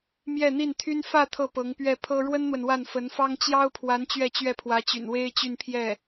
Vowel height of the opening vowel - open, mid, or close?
mid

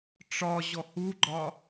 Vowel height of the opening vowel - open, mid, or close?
open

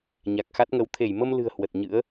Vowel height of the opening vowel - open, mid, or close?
open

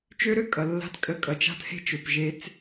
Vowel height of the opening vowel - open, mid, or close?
mid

